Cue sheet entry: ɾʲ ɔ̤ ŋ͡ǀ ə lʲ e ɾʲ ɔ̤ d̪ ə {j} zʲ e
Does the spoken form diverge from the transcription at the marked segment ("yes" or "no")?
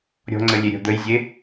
no